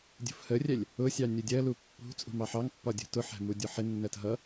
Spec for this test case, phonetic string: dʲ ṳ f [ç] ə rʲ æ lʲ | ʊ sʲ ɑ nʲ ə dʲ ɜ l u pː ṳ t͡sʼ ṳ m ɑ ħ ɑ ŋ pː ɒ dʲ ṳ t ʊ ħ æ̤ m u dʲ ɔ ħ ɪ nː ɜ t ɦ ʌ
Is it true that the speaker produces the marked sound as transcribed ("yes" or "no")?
no